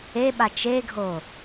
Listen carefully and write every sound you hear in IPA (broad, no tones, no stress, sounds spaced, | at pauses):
e ɓ a t͡ʃ e ɡʱ o